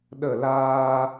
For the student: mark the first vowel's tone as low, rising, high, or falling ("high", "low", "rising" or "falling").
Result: falling